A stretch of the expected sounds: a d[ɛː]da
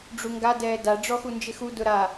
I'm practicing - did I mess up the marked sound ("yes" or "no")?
no